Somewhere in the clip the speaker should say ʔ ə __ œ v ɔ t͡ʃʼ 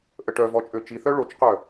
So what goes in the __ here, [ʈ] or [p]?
ʈ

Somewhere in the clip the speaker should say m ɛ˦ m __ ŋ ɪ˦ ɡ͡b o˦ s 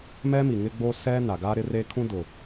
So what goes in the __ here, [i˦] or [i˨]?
i˨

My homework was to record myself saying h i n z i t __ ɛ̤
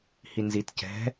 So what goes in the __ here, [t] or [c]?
c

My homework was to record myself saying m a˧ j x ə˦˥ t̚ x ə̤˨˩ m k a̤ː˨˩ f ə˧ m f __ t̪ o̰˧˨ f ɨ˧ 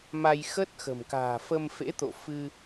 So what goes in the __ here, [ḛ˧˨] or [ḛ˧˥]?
ḛ˧˥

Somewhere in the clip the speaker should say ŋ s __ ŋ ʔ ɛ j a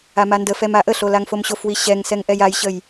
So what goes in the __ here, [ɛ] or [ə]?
ɛ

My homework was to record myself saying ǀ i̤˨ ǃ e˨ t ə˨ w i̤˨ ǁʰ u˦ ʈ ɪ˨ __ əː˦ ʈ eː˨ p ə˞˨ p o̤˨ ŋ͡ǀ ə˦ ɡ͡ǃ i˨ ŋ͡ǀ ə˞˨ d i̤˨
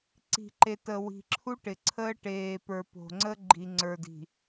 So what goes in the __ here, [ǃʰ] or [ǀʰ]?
ǀʰ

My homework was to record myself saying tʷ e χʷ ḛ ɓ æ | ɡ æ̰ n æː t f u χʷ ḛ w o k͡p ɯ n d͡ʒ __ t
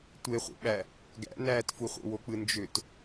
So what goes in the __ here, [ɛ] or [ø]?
ø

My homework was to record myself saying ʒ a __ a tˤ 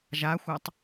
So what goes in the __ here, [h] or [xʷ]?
xʷ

